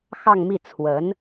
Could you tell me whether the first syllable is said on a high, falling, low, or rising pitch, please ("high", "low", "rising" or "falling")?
falling